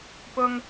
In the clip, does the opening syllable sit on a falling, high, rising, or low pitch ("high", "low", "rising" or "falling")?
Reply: high